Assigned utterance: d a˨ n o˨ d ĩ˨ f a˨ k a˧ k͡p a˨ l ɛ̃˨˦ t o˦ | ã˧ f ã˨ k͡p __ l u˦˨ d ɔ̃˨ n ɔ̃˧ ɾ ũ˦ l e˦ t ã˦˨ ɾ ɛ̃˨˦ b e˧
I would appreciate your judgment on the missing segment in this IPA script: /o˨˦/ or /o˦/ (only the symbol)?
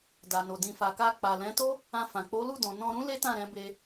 o˨˦